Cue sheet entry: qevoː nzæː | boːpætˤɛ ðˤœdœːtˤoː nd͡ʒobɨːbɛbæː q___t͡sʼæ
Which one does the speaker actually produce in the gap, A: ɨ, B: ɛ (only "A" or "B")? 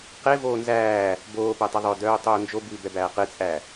A